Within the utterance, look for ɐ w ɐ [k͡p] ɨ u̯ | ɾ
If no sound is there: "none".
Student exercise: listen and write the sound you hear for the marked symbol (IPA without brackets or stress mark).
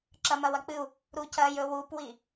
k͡p